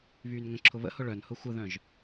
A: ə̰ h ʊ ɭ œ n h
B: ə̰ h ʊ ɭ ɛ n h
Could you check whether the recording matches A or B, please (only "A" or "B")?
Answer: A